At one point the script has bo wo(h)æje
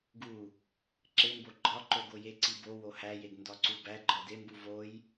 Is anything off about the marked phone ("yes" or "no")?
no